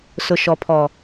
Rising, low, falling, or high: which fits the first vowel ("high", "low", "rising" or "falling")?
low